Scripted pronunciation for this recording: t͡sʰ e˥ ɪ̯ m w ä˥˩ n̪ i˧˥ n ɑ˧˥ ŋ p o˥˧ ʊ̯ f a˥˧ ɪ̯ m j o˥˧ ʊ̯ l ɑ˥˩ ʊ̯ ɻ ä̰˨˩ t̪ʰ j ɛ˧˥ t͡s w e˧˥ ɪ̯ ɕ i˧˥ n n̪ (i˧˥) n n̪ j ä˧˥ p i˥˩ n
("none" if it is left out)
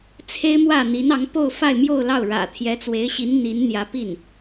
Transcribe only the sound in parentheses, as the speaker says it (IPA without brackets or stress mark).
i˧˥